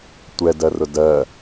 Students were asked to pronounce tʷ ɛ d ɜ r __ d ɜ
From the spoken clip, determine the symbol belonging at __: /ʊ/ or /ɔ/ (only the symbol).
ʊ